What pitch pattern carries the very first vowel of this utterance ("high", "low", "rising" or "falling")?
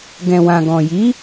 low